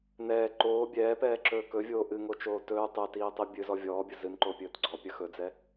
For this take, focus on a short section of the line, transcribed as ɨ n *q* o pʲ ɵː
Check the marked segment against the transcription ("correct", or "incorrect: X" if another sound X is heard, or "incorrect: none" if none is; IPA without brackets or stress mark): incorrect: ǃ